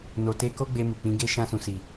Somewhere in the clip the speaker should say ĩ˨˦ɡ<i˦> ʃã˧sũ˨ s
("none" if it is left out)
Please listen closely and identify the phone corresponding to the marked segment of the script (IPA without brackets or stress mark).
e˦